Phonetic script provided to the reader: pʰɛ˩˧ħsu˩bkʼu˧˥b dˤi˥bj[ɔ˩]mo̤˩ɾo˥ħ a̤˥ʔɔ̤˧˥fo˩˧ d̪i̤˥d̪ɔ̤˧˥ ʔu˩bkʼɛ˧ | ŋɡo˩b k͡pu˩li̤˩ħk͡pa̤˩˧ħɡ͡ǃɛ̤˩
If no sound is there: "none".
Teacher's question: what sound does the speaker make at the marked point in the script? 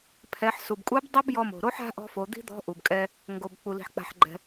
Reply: ɔ˧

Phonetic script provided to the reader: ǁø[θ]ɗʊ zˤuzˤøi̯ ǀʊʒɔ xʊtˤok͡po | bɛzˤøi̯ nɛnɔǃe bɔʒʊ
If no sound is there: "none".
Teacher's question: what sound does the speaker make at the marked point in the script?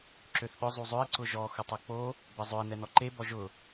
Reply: θ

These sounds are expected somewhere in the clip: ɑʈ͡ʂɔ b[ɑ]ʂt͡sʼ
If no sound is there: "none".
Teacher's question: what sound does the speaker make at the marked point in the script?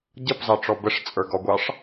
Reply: ə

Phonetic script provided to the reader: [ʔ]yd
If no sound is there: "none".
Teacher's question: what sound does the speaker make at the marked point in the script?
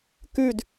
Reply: k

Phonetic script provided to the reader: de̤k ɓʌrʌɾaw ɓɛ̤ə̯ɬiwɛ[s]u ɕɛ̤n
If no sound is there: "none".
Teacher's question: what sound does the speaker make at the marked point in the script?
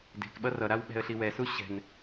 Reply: s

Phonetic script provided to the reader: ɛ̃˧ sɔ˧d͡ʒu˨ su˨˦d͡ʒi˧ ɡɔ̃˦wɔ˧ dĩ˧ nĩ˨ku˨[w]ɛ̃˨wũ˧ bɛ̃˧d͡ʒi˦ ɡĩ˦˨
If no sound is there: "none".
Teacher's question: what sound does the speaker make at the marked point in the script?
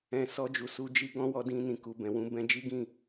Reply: b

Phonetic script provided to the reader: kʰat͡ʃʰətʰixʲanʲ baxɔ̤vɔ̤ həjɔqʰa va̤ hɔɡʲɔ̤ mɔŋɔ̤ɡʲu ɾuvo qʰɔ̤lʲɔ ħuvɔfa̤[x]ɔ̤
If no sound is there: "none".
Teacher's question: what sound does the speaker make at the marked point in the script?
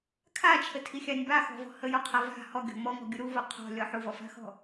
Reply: x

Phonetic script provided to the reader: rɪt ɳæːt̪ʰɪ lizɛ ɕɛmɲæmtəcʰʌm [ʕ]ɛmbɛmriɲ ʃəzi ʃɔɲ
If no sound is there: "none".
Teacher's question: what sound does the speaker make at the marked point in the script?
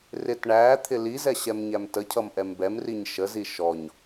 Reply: ʔ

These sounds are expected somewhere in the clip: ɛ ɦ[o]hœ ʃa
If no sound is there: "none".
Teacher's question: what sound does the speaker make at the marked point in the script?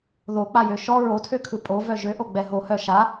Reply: o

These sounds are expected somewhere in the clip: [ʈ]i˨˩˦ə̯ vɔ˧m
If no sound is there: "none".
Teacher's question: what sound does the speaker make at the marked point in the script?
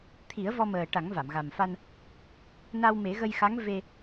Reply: t̪ʰ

